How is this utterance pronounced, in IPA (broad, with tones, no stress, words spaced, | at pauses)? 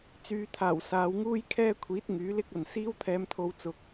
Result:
t͡syː˨˧t̪ʰaː˨˩w saː˨˧wŋuː˥jkʰɛː˥kʷʰiː˨˥t̚ ŋyː˨˥lɪ˥k̚ɐ˨n siː˥wt̪ʰɛː˧mt̪ʰo˧w t͡sʊ˨k̚